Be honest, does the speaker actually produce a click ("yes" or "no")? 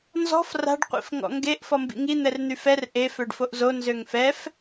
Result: no